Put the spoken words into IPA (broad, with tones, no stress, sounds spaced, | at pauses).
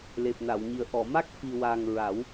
l e˨˩ p̚ n a˨˩˨ w ɲ i˨˩ ə̯ ʔ ɔ˨˩˨ m a˦˥ k̚ f i˨˩ w a˨˩ ŋ ɹ a˨˩˦ w